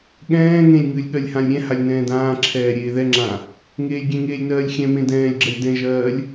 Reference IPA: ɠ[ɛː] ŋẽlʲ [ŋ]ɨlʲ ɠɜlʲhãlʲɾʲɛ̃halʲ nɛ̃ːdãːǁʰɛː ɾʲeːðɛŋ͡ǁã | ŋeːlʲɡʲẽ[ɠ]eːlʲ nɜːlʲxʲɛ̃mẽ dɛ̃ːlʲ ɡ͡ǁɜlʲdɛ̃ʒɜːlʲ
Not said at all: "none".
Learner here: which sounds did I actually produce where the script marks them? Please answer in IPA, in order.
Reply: ɛ̃ː, ŋ, ŋ

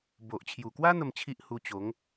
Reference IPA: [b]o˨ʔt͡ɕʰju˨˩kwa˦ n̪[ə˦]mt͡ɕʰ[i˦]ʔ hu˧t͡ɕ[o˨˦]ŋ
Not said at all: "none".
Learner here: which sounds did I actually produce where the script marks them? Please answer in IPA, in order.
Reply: b, ə˥˧, i˦, o˨˦

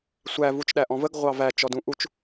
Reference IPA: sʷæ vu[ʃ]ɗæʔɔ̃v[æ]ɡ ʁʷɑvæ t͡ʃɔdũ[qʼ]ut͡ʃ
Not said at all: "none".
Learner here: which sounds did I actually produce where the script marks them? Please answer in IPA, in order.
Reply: t͡ʃ, ə, ʔ

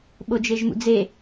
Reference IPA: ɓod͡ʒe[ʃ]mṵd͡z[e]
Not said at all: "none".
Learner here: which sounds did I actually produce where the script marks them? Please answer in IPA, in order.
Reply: ʒ, e

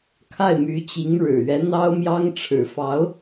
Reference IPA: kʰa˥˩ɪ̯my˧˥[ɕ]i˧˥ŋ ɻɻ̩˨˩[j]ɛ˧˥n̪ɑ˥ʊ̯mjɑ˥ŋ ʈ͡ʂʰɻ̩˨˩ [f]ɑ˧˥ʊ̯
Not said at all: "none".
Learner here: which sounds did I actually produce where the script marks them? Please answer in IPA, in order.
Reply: t͡ɕ, ɥ, f

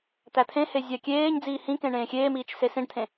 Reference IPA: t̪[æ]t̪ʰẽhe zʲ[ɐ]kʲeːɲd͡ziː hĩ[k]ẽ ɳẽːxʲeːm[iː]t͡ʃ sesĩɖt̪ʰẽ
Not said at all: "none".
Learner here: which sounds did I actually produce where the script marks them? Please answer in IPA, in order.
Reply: æ, a, k, iː

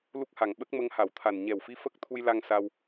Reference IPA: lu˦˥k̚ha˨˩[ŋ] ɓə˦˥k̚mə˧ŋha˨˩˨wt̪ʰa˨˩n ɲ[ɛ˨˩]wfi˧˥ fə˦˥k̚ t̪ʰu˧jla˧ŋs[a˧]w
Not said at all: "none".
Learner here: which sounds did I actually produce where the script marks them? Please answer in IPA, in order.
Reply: ŋ, ɛ˨˩, a˧

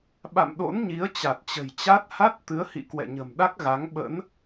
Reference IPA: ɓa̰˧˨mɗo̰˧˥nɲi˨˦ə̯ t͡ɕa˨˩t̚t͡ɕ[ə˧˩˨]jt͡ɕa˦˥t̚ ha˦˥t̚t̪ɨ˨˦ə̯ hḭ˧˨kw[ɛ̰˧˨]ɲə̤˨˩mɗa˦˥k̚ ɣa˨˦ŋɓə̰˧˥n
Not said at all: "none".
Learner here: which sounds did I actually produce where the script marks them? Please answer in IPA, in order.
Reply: ə̤˨˩, ɛ̰˧˨

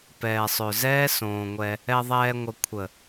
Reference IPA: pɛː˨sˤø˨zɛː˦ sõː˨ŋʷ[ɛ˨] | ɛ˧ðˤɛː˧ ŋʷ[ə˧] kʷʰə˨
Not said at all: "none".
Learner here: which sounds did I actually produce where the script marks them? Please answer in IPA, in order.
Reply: ɛ˧, ə˧

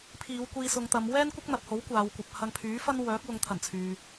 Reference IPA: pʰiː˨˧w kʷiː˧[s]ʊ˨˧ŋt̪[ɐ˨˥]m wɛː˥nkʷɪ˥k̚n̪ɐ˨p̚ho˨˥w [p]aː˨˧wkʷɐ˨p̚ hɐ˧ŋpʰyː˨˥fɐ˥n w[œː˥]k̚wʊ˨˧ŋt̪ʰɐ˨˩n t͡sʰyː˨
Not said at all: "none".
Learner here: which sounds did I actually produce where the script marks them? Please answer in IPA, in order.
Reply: s, ɐ˨˧, kʷ, œː˨˥

